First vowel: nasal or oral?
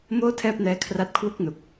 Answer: oral